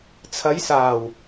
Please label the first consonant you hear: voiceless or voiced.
voiceless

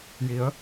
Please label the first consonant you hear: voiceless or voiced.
voiced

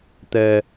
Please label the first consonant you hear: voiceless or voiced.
voiceless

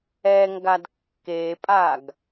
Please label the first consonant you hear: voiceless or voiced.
voiced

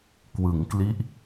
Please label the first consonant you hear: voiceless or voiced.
voiceless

